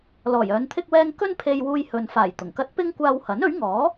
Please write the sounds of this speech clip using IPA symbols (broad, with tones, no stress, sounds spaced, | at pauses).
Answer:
l ɔː˨˩ j œː˨˧ n t̪ʰ ɪ˥ k̚ w ɛː˧ ŋ k ɵ˥ n pʰ e˧ j w uː˧ j h ɵ˨ n f aː˨˩ j t̪ ʊ˨˩ ŋ k ɐ˥ t̚ p ɪ˥ ŋ kʷ aː˧ w h ɐ˨˥ n ɵ˨˥ ɥ ŋ ɔː˨˥